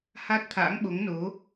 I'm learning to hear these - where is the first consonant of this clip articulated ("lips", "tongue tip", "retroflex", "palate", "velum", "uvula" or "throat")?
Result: throat